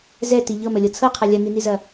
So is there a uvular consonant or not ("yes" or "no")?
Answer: yes